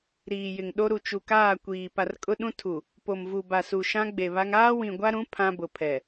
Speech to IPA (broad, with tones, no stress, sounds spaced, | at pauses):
ɾ iː˨ j ɪ˨ ŋ ɗ o˦ ɾ u˨ t͡ʃ u˨ k aː˦˨ kʷ iː˨ p a˨ r kʼ ʊ˦ ɗ ũ˦ tʰ u˨ | p o˨ m v u˨ b a˨ s u˨ ʃ ã˦ ɡ͡b e˨ β a˦ ŋ aː˦ w ĩ˨ ɡʷ a˦ ɾ ũ˨˦ pʰ ã˦ b ʊ˨ pʰ ɛ˨